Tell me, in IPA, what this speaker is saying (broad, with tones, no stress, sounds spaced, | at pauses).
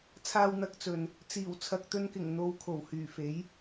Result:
t͡sʰ aː˧ w n̪ ɐ˧ k̚ t͡s ɵ˨ n | t͡s iː˨˩ w t͡sʰ ɐ˨ k̚ t̪ ɵ˧ n k ɪ˨˩ ŋ n̪ o˧ w kʰ o˨˩ w h yː˨˩ f e˨˥ j